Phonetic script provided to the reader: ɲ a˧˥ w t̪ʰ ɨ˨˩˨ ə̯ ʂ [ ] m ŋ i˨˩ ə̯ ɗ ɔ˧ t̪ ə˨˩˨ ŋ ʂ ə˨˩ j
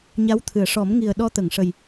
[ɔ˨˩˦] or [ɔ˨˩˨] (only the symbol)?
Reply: ɔ˨˩˦